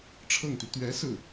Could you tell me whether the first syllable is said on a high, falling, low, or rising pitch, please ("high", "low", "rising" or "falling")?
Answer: falling